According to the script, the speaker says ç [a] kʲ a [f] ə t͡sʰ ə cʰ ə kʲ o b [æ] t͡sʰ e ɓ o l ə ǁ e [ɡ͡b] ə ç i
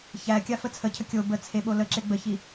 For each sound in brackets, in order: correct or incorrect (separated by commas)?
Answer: incorrect, correct, incorrect, correct